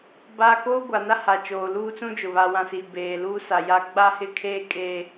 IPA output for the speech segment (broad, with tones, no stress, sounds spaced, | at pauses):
b a˦ k oː˦ ɡʷ a˨ n a˦ h a˨ t͡ʃ oː˨ l uː˦ t͡s ũ˦ d͡ʒ ʊ˨ β a˨ w ã˨ s i˨ b eː˨ l uː˦ s a˨ j a˦ ɡ͡b a˦ h ɪ˦ kʰ eː˦ kʼ eː˦